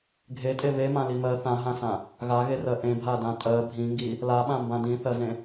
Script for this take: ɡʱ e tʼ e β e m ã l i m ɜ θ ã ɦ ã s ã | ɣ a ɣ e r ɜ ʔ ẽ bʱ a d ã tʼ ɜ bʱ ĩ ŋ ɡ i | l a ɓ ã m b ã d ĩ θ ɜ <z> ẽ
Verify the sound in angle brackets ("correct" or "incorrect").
correct